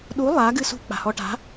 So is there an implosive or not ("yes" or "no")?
yes